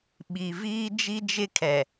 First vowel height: high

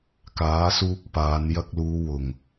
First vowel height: low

